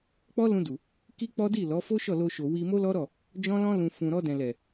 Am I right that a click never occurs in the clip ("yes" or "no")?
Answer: yes